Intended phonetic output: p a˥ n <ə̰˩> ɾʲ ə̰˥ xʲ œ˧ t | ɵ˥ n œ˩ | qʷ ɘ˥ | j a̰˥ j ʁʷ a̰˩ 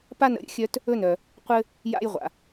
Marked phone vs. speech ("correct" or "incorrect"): incorrect